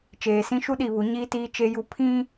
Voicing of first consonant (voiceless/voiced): voiceless